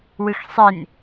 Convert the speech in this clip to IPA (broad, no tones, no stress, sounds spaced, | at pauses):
w ɯ x sˤ e n